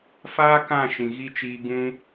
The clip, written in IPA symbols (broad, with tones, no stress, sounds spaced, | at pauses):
f aː˦ k ã˦˨ ʃ ĩ˨ ɣ i˦ t͡ʃ iː˧ ɡ ũ˧